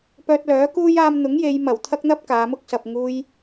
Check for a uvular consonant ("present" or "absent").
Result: absent